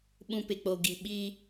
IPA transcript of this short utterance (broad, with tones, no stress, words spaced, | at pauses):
ɓũ˨pɪ˨k͡po˨ ɡi˨ɓiː˦